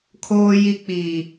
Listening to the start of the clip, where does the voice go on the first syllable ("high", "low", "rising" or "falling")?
low